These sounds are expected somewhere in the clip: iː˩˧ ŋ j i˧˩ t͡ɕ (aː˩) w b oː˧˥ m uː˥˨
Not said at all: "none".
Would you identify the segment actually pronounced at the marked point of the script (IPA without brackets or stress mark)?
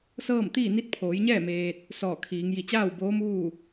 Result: aː˥˨